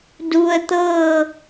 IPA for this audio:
du˩ə̯t̪ɤː˧˩

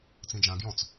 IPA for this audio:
t͡sĩd͡ʒã ɡjɔ̃t͡s

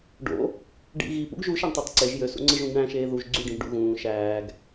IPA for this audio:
ɖo̰ | ɖḭ ɣipṵɡ ʒuʃæɳtˤetˤ ǀeʒ jøsṵŋ͡ǀɯʒũɡ ɳæ̃ʃeː ðuʒ ɡ͡ǀyɖĩʒɖṵ ɣũː ʃæːɡ

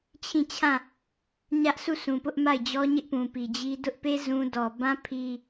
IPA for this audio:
t͡ɕʰĩ˦˨t͡ɕʰã˦˨ | ɲä˦ʔsu˦˨sũ˨ pʊ˦ʔma˦˨ɪ̯ d͡ʑɔ˦ɲɪ˦ʔpũ˨pi˨ d͡ʑi˦ dʊ˦ʔpe˦ zũ˦ dɔ˨bã˦ pʰi˦

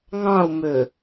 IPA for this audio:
ŋɑ̃u̯mø

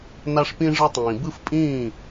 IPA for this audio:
na˧ʂpĩ˧ ʐɯ˧tˤĩː˩ bɯ˥˩fpʼĩː˥˩

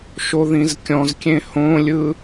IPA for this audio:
ʃoðĩzkʲɔ̃zkʲẽ hõlʲɯ

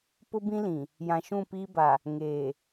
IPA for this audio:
pʊ˦ bĩ˦lĩ˨ | jã˨ʃũ˦˨piː˦ba˨ | ŋeː˨

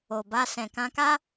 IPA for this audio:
o˨ba˧ sɛ̃˨kã˧ka˦

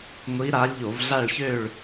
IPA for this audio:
ŋʷi˧˥ɾa˧˥lʲ ʎo˧˩˧vɮa˦˨ɭçø˦˨ɭ

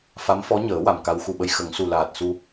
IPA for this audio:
fa˧˥mfɔ˧˥ɲəː˨˩˦ wa˨˩mka˧˥wxu˨˩ɓə˧j xə˨˩˦ŋsu˨˩laː˨˩t̚su˧

